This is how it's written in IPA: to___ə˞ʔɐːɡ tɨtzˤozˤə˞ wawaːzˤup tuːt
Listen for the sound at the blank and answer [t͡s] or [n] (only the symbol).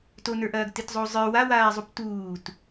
n